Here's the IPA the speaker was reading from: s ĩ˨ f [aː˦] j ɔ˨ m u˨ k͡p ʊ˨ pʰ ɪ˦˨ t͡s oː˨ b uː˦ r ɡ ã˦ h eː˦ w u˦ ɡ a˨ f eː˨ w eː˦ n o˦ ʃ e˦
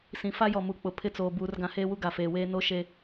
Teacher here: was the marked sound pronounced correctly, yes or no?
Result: no